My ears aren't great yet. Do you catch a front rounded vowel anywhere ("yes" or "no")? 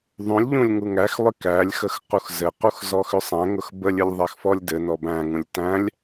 yes